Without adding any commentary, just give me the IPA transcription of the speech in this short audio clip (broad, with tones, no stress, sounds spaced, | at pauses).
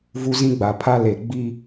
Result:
v u˦ z ĩ˦ ɡ͡b a˨ pʰ a˦ l e˨ ɡ͡b i˦